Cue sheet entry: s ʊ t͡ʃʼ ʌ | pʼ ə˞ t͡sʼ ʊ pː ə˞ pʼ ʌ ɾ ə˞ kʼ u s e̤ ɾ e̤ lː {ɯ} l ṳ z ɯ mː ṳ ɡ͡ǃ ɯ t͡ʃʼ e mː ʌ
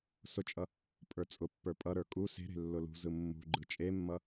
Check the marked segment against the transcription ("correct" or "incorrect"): incorrect